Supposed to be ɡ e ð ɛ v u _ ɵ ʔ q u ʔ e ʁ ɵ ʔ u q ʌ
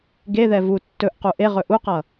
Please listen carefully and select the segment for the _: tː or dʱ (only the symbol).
tː